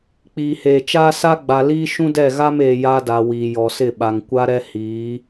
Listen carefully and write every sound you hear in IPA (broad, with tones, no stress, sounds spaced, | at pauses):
k͡p iː˨ h eː˨ t͡ʃ aː˦ s a˦ ɡ͡b a˨ l iː˦ ʃ ũ˦ d ɛ˦˨ ɣ a˦ m eː˨ j a˦ d a˨ w iː˨ j ɔ˨ s ɪ˦˨ ɓ a˨ ŋ kʷ a˦ ɾ ɛ˦ h iː˨˦